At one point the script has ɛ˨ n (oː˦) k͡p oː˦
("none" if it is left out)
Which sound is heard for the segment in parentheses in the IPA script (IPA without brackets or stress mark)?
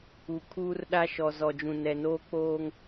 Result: oː˦